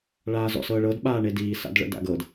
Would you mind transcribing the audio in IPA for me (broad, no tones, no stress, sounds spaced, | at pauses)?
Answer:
ɭ aː z ɔ̰ s ɤː ɭ ɤ d ɓ aː ɳ e d iː s a̰ d ɭ ə̰ d a̰ ɡ ɤ d